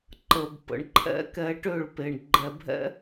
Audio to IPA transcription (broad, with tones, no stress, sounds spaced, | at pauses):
ǃ ə˨ b p ə̰˨ ɳ ǃʰ ɛ̰˦ k ɛ˧ ʈ ø˦˨ ɭ p e˨ ɳ ɡ͡ǃ ɛ˨ bʱ ɛ̰˦